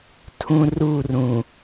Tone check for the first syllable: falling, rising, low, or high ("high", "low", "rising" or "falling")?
high